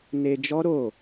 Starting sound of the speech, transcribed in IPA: n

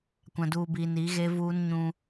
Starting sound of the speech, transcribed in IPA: kʷ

